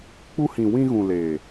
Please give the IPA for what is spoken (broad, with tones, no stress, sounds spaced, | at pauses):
k͡p u˧ h ĩ˨ w ĩ˧ ɣ ũ˨ l eː˨